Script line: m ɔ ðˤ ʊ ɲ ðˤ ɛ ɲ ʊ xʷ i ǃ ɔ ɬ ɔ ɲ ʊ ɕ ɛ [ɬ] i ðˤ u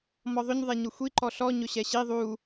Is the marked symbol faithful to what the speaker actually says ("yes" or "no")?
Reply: no